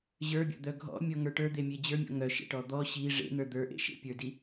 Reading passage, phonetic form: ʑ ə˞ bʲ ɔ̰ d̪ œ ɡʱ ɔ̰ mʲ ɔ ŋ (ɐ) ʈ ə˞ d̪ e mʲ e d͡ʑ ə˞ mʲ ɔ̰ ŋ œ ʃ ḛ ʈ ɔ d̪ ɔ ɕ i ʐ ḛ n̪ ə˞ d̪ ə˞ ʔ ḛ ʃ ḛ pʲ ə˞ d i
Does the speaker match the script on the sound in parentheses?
no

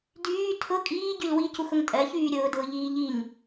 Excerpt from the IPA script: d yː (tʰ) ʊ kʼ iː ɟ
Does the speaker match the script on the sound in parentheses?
yes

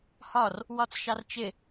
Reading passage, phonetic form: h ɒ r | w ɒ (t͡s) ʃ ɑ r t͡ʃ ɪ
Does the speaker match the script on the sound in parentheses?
yes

